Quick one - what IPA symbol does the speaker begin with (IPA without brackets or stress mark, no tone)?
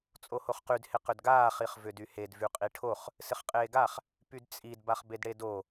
t͡sʼ